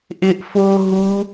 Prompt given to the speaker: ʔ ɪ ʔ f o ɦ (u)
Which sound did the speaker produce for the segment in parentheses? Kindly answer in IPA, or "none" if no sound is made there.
u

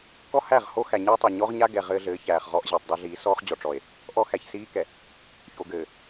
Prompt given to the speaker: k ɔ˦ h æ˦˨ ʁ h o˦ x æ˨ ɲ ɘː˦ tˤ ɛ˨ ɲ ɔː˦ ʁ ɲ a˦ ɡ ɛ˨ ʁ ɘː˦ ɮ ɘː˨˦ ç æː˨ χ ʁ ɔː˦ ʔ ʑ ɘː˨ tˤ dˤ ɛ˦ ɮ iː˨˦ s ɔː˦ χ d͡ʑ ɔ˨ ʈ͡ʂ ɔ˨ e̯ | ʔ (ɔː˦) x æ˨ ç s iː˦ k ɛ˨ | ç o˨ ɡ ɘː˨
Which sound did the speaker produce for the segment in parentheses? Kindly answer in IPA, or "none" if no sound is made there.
ɔ˦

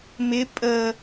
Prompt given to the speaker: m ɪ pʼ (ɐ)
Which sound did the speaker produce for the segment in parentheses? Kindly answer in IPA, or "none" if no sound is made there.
ə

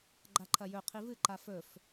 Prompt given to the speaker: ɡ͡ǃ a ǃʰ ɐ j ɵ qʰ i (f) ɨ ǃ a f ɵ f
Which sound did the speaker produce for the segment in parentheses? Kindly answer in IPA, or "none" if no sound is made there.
v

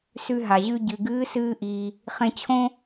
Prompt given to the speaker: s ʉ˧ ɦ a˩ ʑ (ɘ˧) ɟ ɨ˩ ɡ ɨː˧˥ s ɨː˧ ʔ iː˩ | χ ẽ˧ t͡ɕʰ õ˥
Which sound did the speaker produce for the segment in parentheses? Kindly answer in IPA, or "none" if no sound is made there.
ʉ˧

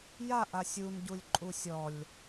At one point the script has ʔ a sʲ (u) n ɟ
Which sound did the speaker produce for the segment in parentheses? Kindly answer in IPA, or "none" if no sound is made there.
u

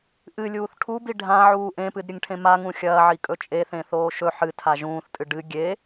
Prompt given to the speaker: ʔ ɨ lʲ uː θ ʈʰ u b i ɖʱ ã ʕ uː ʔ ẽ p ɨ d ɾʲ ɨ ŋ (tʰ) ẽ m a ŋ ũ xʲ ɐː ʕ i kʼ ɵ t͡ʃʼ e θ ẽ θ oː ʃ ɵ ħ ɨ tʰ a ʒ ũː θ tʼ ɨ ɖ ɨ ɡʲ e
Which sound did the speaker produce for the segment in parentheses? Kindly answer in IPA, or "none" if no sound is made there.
ʈʰ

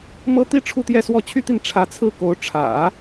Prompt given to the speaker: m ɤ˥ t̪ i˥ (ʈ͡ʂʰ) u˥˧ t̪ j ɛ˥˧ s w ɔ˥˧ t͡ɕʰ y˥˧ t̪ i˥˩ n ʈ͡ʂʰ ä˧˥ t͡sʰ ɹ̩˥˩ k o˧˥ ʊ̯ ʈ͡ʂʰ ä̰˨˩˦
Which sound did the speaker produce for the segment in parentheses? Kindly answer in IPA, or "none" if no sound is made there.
ʈ͡ʂʰ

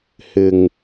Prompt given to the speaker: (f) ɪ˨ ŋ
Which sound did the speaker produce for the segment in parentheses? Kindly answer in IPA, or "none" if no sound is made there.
h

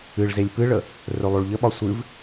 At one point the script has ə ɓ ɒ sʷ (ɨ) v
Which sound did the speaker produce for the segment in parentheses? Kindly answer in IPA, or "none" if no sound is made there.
ɨ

